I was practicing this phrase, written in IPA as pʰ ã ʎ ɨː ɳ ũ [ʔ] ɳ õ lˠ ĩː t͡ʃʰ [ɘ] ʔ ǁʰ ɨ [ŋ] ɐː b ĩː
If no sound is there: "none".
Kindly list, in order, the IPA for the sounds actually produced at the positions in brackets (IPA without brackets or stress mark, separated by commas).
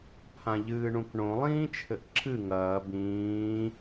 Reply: k, ɘ, ŋ